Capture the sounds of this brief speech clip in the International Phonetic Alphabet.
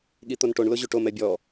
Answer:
ɠit̪onʈoɳ lʊʑuʈom ɛbʲɔ

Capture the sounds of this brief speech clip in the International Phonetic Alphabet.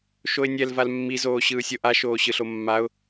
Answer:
ʃoɪ̯nʲɛl valmːi zoːɕɯːsʲoʔa ʃoːɕɯɬomːaʊ̯

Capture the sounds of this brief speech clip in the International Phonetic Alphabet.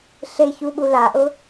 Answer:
ɬeçu ɓulaʔʊ

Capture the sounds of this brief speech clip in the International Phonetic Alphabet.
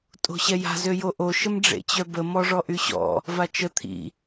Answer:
tʼo̤ɕɛja̤ zøjoʔo ʃəmɖ͡ʐḛt͡ɕœbə mɔʐɔʔyɕɔ̰ | vat͡ʃə t̪ʰḭ

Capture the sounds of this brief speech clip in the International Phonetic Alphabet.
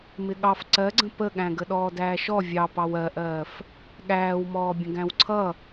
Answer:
mɪɠɑf ǀɜɡ͡ǀə̃ pəɠæ̃ɡə ɗɔːdæːʃɔ vʲɑ pɑwɜʔɜːf | ɠæːwmɔː bʲə̃ɡæ̃wǀʰʌ

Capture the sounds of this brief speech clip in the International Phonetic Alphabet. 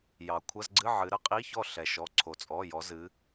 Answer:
jɑ˩kʷʰɐ˧˥˧zɡ͡ǀɨ˧˥˧ ʕɨ˩˧ɾə˨˥qʼi˧˥˧çɔ˥˩ ɬɛ˩ʃɔ˩˧˩ ǀʰo˩t͡sʼɔ˩˧˩jɔ˩˧zɨ˩˧

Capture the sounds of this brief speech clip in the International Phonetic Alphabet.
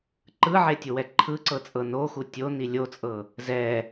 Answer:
ǃɯʕetʲowɛ ǃʰɯǀɤt͡sʼɤ noxu tʲoni lʲot͡sʼɤ | zɛ

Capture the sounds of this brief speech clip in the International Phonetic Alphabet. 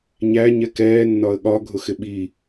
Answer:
ɲæ ɲɛkɛː nːɒə̯ɠɒ ɡʱʊxɪɓi

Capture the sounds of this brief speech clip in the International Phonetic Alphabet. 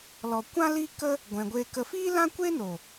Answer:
lɔ˨kʷã˦ li˦kə˦ | ɡʷɛ̃˧ɡʷeː˦kə˦ fiː˦lã˦kʷe˦no˨

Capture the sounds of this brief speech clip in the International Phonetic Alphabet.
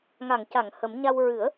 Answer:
ŋa˨˩˨ŋca˨˩˨ŋ hə˨˩˦mɲa˧w ɹɨ˨˩˦ə̯

